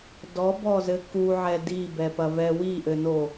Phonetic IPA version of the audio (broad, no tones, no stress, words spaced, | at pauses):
dɔbɔzɘ kuʕɛ dibɛpɐvɛ wiʔɘno